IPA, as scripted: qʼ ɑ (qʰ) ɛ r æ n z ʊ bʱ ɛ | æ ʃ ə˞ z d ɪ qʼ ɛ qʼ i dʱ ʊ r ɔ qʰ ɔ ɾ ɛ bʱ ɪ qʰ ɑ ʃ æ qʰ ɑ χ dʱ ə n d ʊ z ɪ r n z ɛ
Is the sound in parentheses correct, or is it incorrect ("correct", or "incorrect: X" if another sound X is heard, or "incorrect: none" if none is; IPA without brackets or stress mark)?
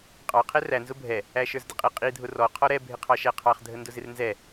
correct